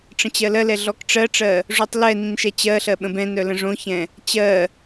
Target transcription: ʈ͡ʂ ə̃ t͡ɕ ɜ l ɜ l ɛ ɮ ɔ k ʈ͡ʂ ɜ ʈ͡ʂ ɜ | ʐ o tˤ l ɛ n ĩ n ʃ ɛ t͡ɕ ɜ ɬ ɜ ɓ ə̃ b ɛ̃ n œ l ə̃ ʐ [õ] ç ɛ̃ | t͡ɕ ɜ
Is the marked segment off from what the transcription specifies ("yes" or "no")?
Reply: no